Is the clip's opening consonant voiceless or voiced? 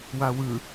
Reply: voiced